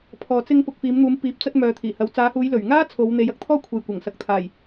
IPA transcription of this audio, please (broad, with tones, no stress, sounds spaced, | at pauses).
pʰ ɔː˨ t͡s ɪ˧ ŋ p ʊ˨ k̚ f iː˨˧ m n̪ uː˨˧ m p iː˨ p̚ t͡s ɐ˧ t̚ m œː˨ t̪ʰ iː˨˩ h ɐ˨˧ w t͡s aː˨˧ h uː˨˧ j l ɵ˨˩ ɥ ŋ aː˥ t͡sʰ o˨˧ w n̪ e˨˧ j ɐ˧ k̚ t̪ʰ ɔː˥ kʷʰ e˨ j kʷ ɐ˨˩ ŋ s ɐ˨ k̚ t̪ʰ aː˨˩ j